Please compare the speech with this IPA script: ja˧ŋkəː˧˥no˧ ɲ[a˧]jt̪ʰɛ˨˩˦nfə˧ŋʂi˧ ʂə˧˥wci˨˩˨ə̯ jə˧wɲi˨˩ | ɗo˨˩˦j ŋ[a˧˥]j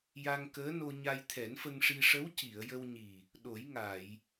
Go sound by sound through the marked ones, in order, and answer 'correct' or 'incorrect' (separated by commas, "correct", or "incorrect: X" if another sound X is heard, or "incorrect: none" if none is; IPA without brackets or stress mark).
correct, incorrect: a˨˩˨